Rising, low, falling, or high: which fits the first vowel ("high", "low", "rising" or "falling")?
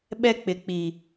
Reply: high